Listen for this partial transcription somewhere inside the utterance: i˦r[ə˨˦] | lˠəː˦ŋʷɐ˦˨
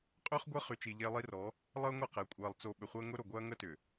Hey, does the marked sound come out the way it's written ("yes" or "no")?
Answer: no